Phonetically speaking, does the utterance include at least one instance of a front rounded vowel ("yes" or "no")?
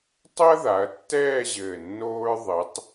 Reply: no